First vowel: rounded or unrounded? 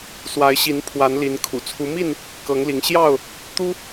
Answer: unrounded